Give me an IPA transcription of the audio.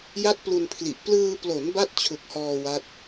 ja˦˥t̚ plu˧npʰli˨˩ʔ plɯː˧ plo˩˦n ba˥˩t̚t͡ɕʰu˨˩k̚hɔː˧ wa˦˥t̚

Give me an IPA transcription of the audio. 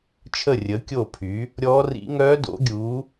t͡ʃʰə˦˨rʲə˨˦ kʲo˦˨pʰy˨˦ | ɾʲɔː˦˥rḭ˦˥ ŋœː˦˥ do̰˨˦ɡʲu˨˦

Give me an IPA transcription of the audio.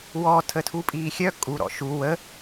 wɔ tʰətʰupʼiːxʲœ kʼu ɾɔ̰ʃu wə

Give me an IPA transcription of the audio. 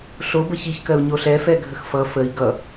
ɬobə çiçkɜu̯ɲo ɬɛfɛɡʱəx fʌ fəi̯ ɡʌ

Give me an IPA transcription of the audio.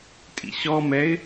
tʼḭɕɔmɛɪ̯

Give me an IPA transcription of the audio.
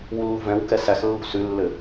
wulːṳvɛ̃wkɛ sæxlːṳ sʉlːɘ

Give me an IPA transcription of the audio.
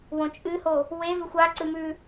wõt͡ʃʼɨho | we vʉxʷa ǀɨmʉ

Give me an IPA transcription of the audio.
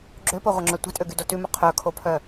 ɡ͡ǁøpoʁʷœŋ͡ǁœ tʷɛ̤tʼøɡydo tʉmɵ qʰœkʰopʰœ

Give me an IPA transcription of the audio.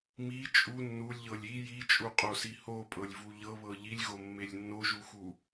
mi t͡ʃʼu nːulʲʎɤlʲ i jit͡ʃʼuqʼosi hopʼɤlʲvu ʎɤβɤ ʎilʲɣomːelʲ nːoʒuxu

